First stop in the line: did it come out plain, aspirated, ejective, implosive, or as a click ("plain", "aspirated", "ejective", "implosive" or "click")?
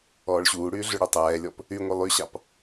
plain